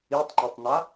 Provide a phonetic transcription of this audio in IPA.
i tˤ ŋ͡ǃ e tˤ n̪ a

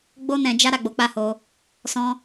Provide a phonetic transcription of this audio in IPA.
ɡ͡b o˦ n ɛ̃˧ d͡ʒ a˦ ɾ a˦˨ ɡ͡b o˨˦ k͡p a˦˨ h o˧ | s ɔ̃˦

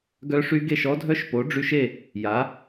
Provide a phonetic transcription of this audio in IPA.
ɡ œ˦˥ ʂ y˦˥ ɡ e˥˧ ʃ ɔ˦˥ dʱ œ˦˥ ʃ p o˨˥ ɖ͡ʐ y˦˥ ʃ e˥˧ | j a˨˥

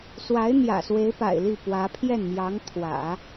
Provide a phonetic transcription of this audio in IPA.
s w a˧˥ ɪ̯ n̪ j ä̰˨˩ s w e˧˥ ɪ̯ p a̰˨˩ ɪ̯ l i˥˩ p w ä˧˥ pʰ j ɛ˥˩ n m j ɑ˧˥ ŋ t̪ʰ w ä̰˨˩˦

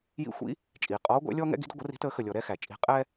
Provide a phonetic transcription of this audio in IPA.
j ḭ˨˩˦ xʷ ḭ˨˦ | t͡ʃʼ iː˩ qʼ ɔː˨˦ ɡʷ æ̰˨˦ lʲ ɔː˦ ŋ ɛ̰˦ ɡ i̤˨˦ d ə˦ ɡʷ ə˨˩˦ r i̤˨˦ t əː˨˩˦ x ə˩ lʲ ɔ˩ ɾ ɛ˦ x æ˩ t͡ʃʼ i̤˨˩˦ qʼ ɛː˦

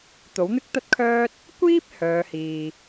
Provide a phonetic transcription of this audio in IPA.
t̪ o˨˥ w n̪ ɪ˥ k̚ t̪ ɐ˥ t̚ kʰ œː˥ t̚ | kʷ iː˥ p̚ h œː˨˧ h iː˨

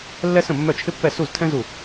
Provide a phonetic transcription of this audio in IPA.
lː ɛ˥ s ə̃˥˩ mː œ˥˩ t͡ʃʰ ɪ˥ pː ɛ˥˩ s u˥˩ z tʰ ɛ̃˥ z u˥˩

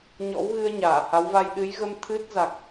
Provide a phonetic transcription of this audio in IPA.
ɲ ɔ̰˧˥ w ɣ ɨ˧ ə̯ ɲ aː˧˩ h a˨˦ w v a˧ j ɗ ɨ˨˦ j ɣ ə˧ m t̪ʰ ɨ˦˥ t̚ z a˨˩ k̚

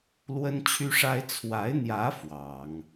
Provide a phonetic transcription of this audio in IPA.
l w ə˥ n t͡ɕʰ y˥ ʂ a˥ ɪ̯ t͡sʰ w a˧˥ ɪ̯ n̪ j ä˧˥ f w ɑ˨˩˦ ŋ

